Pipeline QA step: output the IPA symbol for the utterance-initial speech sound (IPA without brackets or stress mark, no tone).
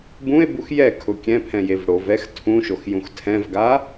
b